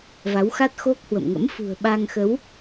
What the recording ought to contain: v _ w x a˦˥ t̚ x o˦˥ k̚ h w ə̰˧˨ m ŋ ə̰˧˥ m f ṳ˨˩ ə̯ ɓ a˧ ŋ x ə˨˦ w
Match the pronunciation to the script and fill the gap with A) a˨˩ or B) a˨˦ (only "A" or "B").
B